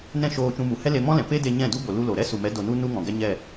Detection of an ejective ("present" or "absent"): absent